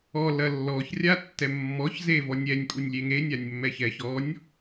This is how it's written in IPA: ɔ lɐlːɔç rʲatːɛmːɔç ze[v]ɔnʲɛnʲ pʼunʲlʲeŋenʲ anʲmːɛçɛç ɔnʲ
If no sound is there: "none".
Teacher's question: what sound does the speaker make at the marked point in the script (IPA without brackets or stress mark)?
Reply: v